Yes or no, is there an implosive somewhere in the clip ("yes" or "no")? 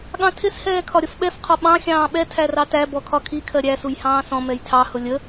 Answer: yes